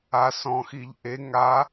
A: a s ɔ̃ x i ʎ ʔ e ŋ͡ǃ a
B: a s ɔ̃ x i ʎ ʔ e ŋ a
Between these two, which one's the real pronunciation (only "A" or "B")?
B